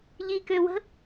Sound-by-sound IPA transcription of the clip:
ʎikøwə̤

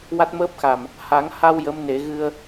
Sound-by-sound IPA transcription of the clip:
wa˦˥t̚məː˦˥p̚xa˨˩m | ha˨˩˦ŋha˧w jə˧˥mne˨˩˦ ɣɨ˧ə̯

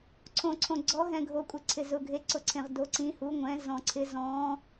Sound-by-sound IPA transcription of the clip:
ǀʰõ˧ǀʰõ˧ ɡ͡ǀɔ˧˥ɦɛ̃˧ ɡʱo˧kʷʼɪ˧ǀʰɪ˧ zʊ˧ɡʱe˧˥ǀʊ˧ǀʰẽ˧ʁ do˧˥ǀĩ˧˥hu˧˥ ŋʷɛ̃˧˥ zɔ̃˧ǀʰɪ˧˥ zɔ̃˧˥

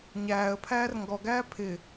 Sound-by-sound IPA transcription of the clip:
ɲæːə̯pʰæːr ŋɡɔɡæː pʰɪ

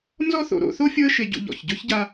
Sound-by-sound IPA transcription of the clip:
nzɔ˥θo̰˨ɾo̰˦ θo˥fʲo˦ə̯ʃe˨ɟṵ˨ ʎɔ̰˩çɟɵ˥çɟa˦

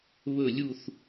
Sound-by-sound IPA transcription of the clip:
βɵ˥˧lʲu˥˧θ

